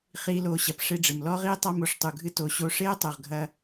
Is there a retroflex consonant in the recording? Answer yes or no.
yes